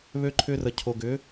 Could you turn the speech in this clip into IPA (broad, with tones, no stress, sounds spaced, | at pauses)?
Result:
β ø˧ ǃʰ ʏː˧ r ə˨ cʰ o˨ ɡ ʏː˨˦